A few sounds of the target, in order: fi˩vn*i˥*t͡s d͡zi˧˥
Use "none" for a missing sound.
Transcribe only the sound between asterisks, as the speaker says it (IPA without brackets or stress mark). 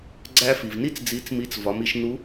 i˥